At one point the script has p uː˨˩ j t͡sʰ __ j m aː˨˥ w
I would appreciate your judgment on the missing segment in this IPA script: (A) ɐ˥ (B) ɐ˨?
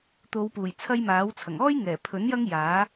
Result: A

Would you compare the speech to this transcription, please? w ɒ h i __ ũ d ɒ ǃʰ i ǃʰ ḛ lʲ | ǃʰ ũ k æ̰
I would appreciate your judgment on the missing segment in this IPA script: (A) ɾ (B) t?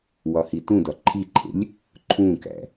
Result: B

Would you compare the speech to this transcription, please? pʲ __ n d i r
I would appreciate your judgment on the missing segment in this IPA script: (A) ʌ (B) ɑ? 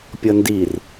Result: A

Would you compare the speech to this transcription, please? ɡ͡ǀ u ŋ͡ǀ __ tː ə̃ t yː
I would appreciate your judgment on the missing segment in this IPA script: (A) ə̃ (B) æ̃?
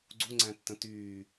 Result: B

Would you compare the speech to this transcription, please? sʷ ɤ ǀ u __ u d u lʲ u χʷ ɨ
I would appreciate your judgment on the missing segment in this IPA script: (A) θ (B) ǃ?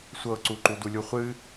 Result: B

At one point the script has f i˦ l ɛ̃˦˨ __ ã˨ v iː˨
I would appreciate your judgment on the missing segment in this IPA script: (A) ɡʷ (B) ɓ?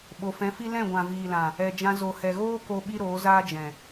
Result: A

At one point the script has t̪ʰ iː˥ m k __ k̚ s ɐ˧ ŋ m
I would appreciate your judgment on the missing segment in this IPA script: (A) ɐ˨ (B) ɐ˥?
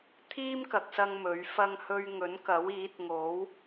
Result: A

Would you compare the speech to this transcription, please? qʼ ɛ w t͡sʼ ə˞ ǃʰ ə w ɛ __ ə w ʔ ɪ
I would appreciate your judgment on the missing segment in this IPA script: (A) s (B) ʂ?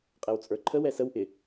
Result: A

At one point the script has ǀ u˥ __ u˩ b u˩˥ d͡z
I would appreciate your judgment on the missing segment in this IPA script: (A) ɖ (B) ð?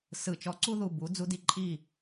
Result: B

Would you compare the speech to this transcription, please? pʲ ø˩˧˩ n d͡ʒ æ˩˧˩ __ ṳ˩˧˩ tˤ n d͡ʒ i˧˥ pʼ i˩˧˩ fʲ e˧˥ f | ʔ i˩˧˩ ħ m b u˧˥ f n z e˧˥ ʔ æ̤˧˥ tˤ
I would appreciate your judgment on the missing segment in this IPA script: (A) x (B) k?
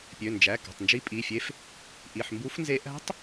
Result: B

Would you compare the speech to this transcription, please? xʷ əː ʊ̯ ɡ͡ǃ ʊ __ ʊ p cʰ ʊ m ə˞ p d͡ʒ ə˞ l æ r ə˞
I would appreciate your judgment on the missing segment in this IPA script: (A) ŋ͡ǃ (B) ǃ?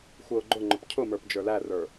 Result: A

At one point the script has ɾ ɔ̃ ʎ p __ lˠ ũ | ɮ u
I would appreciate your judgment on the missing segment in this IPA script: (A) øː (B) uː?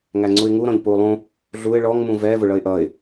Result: B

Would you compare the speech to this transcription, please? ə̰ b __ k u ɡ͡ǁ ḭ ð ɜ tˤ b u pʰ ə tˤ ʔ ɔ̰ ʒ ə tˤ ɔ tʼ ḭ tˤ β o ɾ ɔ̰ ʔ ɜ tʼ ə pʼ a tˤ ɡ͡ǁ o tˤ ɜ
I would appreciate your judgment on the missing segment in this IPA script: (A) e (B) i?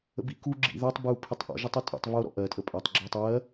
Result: B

